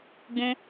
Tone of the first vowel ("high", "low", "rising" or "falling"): high